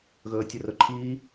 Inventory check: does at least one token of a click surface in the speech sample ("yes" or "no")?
yes